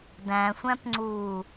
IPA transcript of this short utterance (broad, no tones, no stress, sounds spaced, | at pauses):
d æ̃ sʷ æ̃ p ŋ͡ǀ uː